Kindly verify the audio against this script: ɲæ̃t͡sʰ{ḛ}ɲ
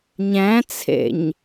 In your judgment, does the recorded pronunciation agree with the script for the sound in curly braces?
yes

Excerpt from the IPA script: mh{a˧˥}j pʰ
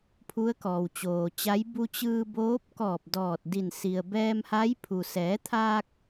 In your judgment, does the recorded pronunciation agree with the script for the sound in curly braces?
yes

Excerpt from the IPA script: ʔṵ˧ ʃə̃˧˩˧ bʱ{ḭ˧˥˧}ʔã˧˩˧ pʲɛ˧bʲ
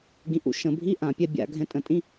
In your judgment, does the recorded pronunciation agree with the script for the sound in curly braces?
no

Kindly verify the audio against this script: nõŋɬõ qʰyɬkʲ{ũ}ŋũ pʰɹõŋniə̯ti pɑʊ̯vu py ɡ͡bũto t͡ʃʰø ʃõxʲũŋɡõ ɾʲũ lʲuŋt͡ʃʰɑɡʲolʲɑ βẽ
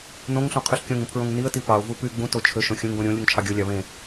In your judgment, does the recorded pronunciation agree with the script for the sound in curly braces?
no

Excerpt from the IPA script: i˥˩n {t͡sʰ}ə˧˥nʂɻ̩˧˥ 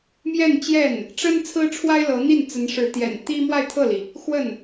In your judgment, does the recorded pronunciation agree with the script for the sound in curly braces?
no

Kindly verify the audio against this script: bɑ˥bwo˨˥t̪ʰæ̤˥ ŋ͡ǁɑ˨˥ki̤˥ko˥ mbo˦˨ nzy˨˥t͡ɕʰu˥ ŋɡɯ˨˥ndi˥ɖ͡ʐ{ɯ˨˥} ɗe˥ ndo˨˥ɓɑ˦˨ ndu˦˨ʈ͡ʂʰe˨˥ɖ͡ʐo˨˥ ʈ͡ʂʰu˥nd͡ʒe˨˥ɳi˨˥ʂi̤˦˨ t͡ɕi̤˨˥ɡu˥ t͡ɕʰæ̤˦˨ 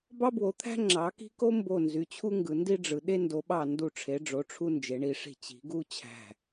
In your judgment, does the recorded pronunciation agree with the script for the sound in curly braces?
yes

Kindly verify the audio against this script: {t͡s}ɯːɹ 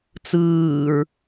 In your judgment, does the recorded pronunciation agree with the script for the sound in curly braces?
yes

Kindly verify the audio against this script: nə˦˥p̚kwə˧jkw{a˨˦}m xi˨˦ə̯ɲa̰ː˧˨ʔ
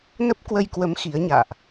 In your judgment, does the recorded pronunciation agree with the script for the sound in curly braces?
no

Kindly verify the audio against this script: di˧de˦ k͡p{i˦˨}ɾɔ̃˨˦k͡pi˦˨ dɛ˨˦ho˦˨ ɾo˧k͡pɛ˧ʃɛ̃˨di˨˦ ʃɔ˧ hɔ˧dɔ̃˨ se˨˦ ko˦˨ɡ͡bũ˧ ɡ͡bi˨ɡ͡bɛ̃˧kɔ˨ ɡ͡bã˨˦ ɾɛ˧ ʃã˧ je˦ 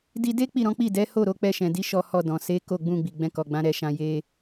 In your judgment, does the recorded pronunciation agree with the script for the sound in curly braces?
yes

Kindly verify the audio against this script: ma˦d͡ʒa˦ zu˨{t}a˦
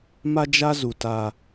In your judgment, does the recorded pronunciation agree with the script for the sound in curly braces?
yes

